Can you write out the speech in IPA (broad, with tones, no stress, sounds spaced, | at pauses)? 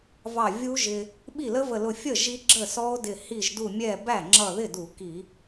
v ɑ˧˩ vʲ u˦˥ ʒ ɪ˧ | ɓ i˥˩ l ə˦˥ v ə˧˩ l ʊ˧˩ fʲ ə˥˩ ʒ i˧ ɡ͡ǁ ə˥˩ s ɔ˦˥ o̯ d ɪ˧˩ h i˧˩ ʒ d u˧˩ mʲ ɛ˧˩ b æ˥˩ ŋ͡ǁ ʌ˧˩ ð ɪ˥˩ d u˧˩˧ k i˧˩˧